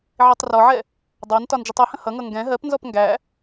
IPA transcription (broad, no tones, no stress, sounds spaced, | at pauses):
ʕ i tˤ r ɔ ʕ ɛ | dˤ ɑ n t ɒ n d͡ʒ ʌ tˤ ʌ h ə̃ h ʌ ŋ ʌ ŋ ɡ ɛ̃ ɦ ɜ p n z ɔ p ŋ ɡ æ